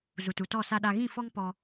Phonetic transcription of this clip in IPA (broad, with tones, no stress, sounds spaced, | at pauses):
z u˨ t u˨ t ɔ˦˨ s a˦ ɗ a˦ ɣ ĩ˦˨ f ɔ˦ ŋ p ɔ˦